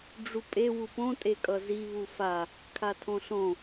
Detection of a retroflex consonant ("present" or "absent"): present